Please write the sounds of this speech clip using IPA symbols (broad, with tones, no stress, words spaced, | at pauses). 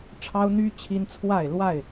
ʈ͡ʂʰɑ˦ʊ̯ n̪y˦ t͡ɕʰi˦nt͡sʰwa˥˨ɪ̯ lwa˥˨ɪ̯